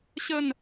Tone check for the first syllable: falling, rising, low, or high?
falling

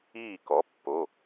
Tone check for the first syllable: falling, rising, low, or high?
falling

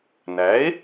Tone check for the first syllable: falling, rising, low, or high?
rising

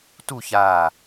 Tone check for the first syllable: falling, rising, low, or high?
falling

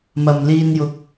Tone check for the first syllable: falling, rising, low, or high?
low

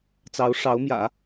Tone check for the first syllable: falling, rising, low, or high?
rising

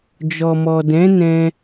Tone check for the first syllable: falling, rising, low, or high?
low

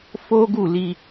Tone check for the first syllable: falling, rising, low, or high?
high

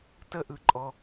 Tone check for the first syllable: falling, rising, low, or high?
falling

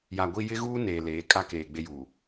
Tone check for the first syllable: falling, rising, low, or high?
low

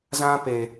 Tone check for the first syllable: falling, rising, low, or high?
high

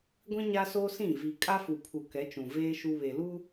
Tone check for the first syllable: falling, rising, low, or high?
high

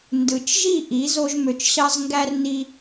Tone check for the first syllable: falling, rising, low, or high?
low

